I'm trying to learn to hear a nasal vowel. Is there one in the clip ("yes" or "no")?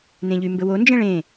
yes